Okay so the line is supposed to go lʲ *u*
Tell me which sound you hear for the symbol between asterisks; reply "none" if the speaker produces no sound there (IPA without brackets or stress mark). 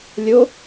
o